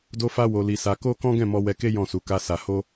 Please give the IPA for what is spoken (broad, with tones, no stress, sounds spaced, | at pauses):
d o˦ f a˦ w o˧ l i˧ s a˧ k o˦ k ɔ̃˦ ɡ ɛ̃˦˨ m ɔ˧ w ɛ˧ k e˦ j ɔ̃˦˨ s u˨˦ k a˦ s a˧ h o˦